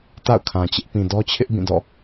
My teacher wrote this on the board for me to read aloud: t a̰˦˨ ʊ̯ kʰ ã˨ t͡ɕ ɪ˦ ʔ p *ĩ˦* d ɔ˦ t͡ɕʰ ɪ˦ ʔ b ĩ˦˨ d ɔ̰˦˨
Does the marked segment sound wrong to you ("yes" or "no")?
yes